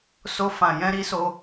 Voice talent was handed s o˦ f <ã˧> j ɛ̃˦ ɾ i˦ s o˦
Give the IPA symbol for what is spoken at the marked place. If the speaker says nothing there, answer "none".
ã˧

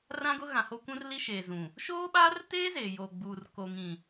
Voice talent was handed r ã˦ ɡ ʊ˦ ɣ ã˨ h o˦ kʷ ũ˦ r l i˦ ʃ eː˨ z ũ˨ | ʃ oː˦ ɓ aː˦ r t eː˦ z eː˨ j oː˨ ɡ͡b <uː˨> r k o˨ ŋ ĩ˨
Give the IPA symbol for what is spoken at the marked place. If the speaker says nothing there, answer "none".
uː˨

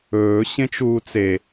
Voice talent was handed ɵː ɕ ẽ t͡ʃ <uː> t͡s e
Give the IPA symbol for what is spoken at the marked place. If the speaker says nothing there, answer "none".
uː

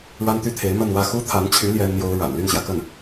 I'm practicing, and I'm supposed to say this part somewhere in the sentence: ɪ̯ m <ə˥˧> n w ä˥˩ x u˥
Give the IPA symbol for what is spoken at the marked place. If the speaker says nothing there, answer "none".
ə˥˧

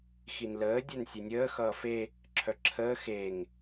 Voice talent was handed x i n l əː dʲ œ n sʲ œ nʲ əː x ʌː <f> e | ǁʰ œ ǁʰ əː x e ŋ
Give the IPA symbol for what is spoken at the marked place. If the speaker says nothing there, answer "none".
f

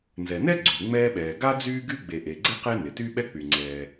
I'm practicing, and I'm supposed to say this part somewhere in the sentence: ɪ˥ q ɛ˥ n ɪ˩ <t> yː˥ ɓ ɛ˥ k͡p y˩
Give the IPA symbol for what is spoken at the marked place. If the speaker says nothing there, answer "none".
t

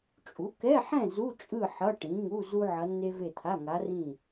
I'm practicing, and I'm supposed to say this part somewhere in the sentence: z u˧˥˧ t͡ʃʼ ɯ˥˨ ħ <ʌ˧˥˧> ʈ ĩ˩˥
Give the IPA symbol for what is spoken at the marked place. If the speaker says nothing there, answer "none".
ʌ˧˥˧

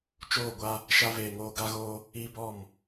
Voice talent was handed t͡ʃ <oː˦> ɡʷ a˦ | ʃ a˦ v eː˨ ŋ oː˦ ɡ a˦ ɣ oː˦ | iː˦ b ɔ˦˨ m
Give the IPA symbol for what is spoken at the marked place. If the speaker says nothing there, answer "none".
oː˦˨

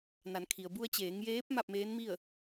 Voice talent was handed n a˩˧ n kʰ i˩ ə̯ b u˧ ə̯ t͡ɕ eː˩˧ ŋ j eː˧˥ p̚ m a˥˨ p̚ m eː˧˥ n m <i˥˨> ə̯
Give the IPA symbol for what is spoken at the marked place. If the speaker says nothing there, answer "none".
i˥˨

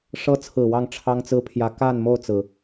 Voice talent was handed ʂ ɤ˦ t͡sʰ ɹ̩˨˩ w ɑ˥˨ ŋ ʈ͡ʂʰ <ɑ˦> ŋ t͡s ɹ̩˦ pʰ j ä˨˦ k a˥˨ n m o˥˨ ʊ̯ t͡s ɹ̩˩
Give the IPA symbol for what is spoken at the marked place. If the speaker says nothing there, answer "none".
ɑ˦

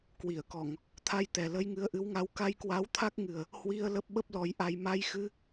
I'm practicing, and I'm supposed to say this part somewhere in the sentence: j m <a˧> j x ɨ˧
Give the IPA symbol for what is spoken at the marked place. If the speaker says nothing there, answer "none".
a˧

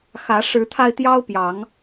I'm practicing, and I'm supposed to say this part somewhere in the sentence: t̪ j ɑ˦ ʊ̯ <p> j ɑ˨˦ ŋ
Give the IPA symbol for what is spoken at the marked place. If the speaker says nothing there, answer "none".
p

